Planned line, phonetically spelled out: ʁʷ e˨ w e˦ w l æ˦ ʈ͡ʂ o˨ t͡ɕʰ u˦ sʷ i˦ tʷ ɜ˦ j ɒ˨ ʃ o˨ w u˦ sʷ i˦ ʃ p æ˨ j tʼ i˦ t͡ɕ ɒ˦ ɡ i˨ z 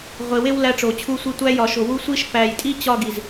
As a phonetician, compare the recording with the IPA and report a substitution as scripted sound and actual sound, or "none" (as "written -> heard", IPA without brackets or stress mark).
ɜ˦ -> æ˦